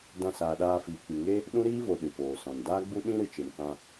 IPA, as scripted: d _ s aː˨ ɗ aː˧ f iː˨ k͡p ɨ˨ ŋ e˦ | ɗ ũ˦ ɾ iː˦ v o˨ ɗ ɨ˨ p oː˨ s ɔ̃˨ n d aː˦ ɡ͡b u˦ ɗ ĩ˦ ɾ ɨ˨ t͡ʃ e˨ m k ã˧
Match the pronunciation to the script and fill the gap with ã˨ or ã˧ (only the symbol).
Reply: ã˧